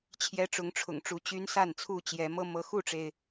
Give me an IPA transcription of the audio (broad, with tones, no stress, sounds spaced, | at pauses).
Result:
t͡ɕʰ j ɛ˦ ʈ͡ʂ ʊ˨˦ ŋ ʈ͡ʂʰ ʊ̰˨˩ ŋ ʈ͡ʂ u˨˦ t͡ɕ y˦ n s a˥˨ n t͡sʰ u˥˨ t͡ɕ j ɛ˨˦ m ɤ˦ m ɤ˨˦ x u˥˨ ʈ͡ʂ e˩ ɪ̯